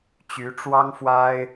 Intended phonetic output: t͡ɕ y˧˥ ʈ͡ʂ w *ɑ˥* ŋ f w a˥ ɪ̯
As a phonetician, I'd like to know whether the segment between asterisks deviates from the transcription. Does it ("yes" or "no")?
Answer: no